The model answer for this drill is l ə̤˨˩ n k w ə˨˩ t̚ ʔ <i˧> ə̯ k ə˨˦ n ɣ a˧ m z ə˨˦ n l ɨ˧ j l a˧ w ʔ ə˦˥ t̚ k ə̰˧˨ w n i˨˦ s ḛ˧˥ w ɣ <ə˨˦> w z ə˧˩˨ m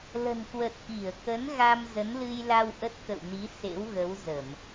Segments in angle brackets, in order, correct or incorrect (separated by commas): incorrect, correct